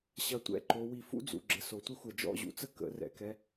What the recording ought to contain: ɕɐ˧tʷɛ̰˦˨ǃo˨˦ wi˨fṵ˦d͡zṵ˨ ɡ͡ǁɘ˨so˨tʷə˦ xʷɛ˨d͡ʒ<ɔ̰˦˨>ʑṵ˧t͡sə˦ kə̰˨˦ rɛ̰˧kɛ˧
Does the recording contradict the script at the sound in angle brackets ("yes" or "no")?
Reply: no